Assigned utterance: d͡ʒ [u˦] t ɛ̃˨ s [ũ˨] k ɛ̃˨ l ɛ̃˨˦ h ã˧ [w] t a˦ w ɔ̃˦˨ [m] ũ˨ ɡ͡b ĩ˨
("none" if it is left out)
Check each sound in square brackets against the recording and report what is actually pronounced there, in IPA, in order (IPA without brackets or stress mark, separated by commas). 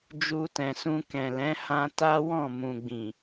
u˧, ũ˧, none, m